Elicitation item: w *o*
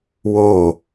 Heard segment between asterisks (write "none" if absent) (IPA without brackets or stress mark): o